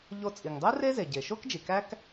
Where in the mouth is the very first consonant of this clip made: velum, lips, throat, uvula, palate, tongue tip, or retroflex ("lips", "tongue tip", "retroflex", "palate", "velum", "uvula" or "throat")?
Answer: palate